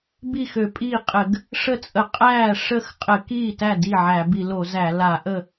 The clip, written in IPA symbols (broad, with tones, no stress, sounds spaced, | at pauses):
b i˥˩ x ø˧˩˧ pʼ iː˥˩ qʼ ɘ˧˩˧ ɡ | ʂ ə˥˩ t͡sʼ ə˧˩˧ qʼ æː˥˩ ʂ ə˥˩ x qʼ ɘ˧˩˧ k iː˥˩ t æ˥˩ d i˥˩ ʕ æ˧˩˧ b i˧˩˧ l o˧˩˧ z æ˧˩˧ l a˧˩˧ ʔ ə˥˩